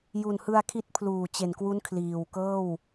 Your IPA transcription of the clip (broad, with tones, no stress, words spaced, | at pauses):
ju˨˩nhɯ˧a̯kʰi˦˥t̚ pʰluː˨˩t͡ɕe˨˩nkwu˦˥n kʰliː˨˩wkɤː˥˩w